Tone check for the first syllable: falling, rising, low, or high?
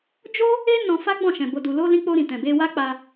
high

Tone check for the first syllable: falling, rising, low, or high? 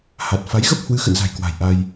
low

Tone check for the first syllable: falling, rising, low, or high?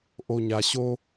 low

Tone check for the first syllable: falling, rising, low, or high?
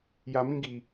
low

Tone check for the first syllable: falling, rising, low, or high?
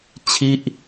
falling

